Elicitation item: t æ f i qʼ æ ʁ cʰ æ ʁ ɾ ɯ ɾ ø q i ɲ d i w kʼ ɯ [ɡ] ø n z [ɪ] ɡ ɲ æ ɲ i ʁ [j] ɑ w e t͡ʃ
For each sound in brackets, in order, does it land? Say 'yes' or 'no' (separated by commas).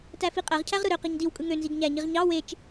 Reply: no, no, no